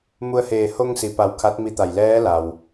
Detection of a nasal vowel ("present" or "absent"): absent